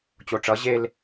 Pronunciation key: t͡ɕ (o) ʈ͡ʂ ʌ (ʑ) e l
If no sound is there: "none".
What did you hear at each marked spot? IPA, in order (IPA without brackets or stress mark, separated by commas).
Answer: o, ʑ